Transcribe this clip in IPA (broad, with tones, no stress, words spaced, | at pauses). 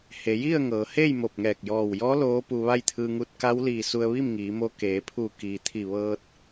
he˩˧ji˥˨ə̯ŋɤː˩˧he˥˨j mo˧˩p̚ŋɛː˧˩k̚ jɔː˧˩wjɔː˧˥ loː˧˥pu˧ ʋa˥˨jt̪ʰɯː˧ŋu˧t̚ ka˧˥wliː˧˩ su˧ə̯ʋi˥˨mŋiː˩˧mo˧ keː˩˧pʰu˧˩ kiː˩t̪ʰi˧˩ʋɤː˧t̚